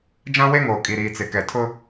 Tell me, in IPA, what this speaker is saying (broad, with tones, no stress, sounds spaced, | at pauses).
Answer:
d͡ʒ ã˦ w e˦ ŋ oː˨ kʼ i˨ ɾ iː˨ t͡s ɪ˨ k ɛ˨ tʰ ʊ˦